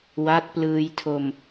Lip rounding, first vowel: unrounded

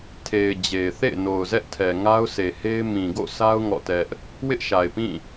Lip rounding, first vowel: unrounded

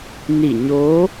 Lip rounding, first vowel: unrounded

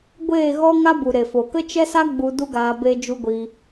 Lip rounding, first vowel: unrounded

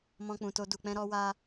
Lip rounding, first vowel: rounded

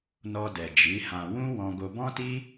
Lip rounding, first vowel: rounded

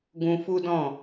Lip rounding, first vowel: rounded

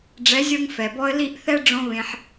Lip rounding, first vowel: unrounded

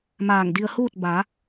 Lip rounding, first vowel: unrounded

